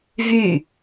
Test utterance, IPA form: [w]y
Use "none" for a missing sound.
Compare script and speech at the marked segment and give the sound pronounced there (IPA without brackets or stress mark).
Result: v